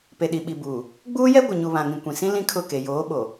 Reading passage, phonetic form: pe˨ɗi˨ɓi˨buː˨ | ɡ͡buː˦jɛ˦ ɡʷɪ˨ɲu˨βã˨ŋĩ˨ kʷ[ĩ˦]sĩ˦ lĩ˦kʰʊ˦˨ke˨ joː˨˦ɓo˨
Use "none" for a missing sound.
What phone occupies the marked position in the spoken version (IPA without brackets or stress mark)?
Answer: ĩ˨